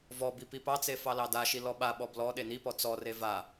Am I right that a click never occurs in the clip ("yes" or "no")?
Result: yes